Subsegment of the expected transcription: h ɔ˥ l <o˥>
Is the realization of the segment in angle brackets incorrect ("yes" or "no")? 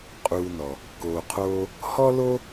no